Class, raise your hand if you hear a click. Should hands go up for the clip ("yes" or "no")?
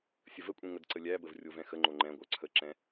yes